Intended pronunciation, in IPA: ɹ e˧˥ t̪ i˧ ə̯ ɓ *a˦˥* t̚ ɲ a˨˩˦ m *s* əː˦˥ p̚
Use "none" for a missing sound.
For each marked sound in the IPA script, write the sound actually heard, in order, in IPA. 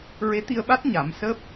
a˦˥, s

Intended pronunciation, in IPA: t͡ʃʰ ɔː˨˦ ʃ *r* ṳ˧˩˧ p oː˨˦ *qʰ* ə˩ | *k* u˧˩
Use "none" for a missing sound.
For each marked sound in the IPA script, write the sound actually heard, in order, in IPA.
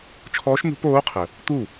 n, qʰ, t̪

